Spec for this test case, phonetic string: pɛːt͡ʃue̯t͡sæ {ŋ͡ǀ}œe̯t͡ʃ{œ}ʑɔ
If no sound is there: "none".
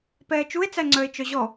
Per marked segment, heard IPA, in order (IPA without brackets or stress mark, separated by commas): ŋ͡ǀ, œ